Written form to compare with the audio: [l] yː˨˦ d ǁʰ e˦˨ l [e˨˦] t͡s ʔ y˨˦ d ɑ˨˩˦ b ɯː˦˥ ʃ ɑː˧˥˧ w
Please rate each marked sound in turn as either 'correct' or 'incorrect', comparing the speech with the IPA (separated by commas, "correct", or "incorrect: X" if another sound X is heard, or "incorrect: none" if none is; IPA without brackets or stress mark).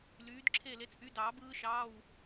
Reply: correct, correct